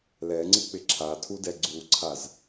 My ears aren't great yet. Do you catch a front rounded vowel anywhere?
no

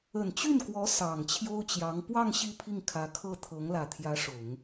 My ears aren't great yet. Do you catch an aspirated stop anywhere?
yes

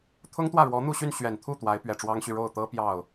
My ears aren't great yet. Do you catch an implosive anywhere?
no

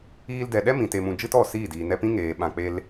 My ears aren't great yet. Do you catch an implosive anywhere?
yes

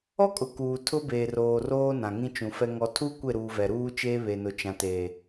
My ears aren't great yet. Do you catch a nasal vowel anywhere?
yes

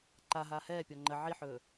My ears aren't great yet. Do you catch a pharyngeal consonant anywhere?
yes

